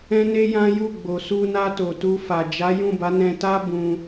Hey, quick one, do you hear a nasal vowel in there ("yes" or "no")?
yes